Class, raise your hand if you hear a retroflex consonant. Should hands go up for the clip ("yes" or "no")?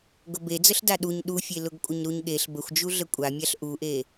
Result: no